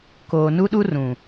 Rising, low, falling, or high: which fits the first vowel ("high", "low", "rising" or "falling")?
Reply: low